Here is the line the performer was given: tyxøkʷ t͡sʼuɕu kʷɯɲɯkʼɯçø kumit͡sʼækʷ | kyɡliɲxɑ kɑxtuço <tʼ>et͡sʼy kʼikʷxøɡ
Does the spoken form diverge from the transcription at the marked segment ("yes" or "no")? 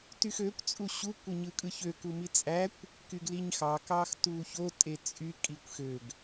no